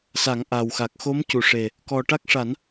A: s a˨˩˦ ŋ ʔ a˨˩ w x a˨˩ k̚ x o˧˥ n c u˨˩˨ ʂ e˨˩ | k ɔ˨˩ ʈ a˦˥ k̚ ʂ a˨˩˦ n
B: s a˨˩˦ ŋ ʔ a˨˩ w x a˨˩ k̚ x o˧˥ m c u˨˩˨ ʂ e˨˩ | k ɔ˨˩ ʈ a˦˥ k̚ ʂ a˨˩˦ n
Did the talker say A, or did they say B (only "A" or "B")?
B